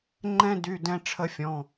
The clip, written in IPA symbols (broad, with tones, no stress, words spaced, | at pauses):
ŋ͡ǃɛ̃˥dy˧˥˧ dɛ̃˥ʈ͡ʂʰə˥fʲɔ̃˧˥˧